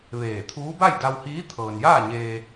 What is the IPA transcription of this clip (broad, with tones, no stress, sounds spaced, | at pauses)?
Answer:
ʋ eː˧˩ t̪ʰ uː˧˥ b a˥˨ j d a˧ w h iː˧˥ t̪ʰ ɤː˩ n j aː˥˨ ɲ eː˧